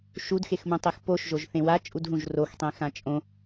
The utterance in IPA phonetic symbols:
ʃudxexmũtˤex poʃʒoʒ θẽwa t͡ʃʼudɦũʒroxtˤẽ xãt͡ʃʼõ

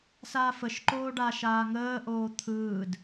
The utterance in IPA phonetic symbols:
saːfəʃǃoːɖaːʃ aːŋəːʔoː t̪ʰɯːd

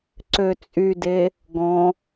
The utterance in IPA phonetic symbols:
ǀøt͡sʼyde | ɡɔ̃

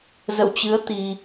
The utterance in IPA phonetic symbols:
zə̰˧˨wt͡ɕɨ˨˦ə̯ t̪i˧

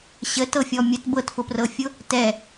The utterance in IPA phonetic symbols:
ɕətɤfʲɔ mʲət bɤtfʊprɤfʲʊ | tɛ

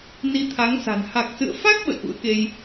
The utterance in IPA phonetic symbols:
ni˧t̪ʰa˨˦ŋsa̤˨˩n ha˨˩k̚sɨ̰˧˨ə̯fa˦˥k̚ ɓə̰˧˨jʔṵ˧˥ə̯ke˧j

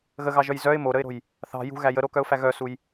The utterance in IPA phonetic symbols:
ɣəɣɑʒœj zœɪ̯ moɾəɪ̯ɾo̤j | θɑ̤ jṳɣæ jəɾokœʊ̯fæ ɣœsuj

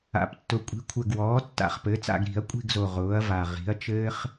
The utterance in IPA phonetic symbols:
a̰˨˩ptːʊ˨˩ kʷʼi̤˩˥kʷʰɘ˨˩ɡwɔː˩˥ tːa̰˨˩˦χpɘː˩˥t͡sa̰˦˨ɡ ɾi̤˨˩˦ɐ̯kʷʼi̤˦˨ɡzo˨˩ ʁʊː˩˥ɐ̯va˨˩ ʁi̤˩˥ɐ̯t͡ʃɘː˥χ

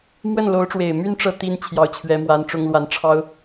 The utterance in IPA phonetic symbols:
mwə˥˩nlo˧˥ʊ̯ʈ͡ʂwe˨˩ɪ̯ my˥˧nʈ͡ʂɤ˥˩ t̪i˥n t͡ɕʰjɑ˧˥ʊ̯t͡ɕʰɥɛ˧˥mwa˧˥nʈ͡ʂʊ˥ŋ lwa˧˥n ʈ͡ʂʰɑ˥ʊ̯

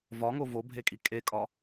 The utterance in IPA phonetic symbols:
vɒŋo vobʱekʼi kʼekʼɒ

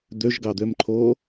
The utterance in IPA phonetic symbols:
d̪øʒɡɑd̪ømǃʰoː

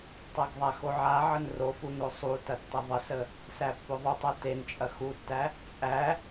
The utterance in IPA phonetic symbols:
tˤæɡðˤaxo ʕaʕən rof unosˤutɐ tːɐðˤəsə | sæpːoðˤutˤæ tent͡ʃʼɐ xutːæ | t͡sʼæ

